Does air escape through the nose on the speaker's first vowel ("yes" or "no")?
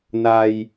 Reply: no